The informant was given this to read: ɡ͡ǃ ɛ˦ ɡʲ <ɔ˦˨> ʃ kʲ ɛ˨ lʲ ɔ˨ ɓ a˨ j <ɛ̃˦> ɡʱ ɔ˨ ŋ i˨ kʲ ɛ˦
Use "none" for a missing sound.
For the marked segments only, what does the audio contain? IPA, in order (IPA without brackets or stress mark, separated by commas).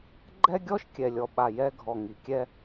ɔ˦, ɛ˦